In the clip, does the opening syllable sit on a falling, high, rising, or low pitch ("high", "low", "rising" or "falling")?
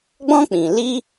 high